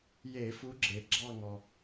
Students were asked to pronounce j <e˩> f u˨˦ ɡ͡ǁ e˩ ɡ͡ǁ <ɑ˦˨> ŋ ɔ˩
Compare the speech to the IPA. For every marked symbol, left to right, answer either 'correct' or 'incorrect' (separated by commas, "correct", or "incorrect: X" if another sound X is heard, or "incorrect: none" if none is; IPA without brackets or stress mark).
incorrect: e˧˩˧, correct